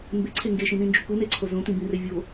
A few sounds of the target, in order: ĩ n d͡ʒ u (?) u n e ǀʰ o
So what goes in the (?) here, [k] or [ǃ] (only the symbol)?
k